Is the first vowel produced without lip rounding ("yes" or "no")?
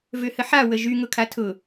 no